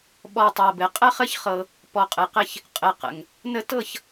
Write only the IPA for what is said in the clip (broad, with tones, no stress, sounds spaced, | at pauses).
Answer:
ɓ ɔ˨ tˤ ɤ˨ b ɘ˨ qʼ ə˦ χ ə˦ ç χ ɤ˧ | p ɔ˨ qʼ ɘ˨ q ɘ˧ ç | qʼ ɘ˨ q ə̰˨ ŋ | n ə˧ t ɤ˦˨ ç